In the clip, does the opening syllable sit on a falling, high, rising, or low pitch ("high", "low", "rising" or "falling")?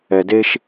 low